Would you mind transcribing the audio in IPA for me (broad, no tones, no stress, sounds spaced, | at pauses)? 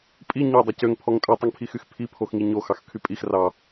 pʼ i ɲ ø dˤ ɛ c ø ŋ pʰ ɔ ŋ tʼ ʉ tˤ ʉ ŋ pʰ i x y x pʰ i pʰ o x ŋ i ɲ o x ɑ x kʰ y pʼ i x r ɑ